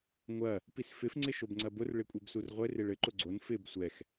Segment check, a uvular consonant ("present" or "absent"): present